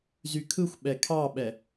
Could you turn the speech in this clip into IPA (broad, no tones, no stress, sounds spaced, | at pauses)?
z y kʰ ɯ xʷ ɓ ɛ kʰ ɑ ɓ ɛ